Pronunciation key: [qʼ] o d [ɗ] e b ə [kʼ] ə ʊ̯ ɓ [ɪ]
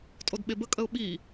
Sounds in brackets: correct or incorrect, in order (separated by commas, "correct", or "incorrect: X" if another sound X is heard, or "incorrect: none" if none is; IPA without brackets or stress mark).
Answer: incorrect: tʼ, incorrect: ɓ, correct, incorrect: i